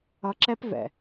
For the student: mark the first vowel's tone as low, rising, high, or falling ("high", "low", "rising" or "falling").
low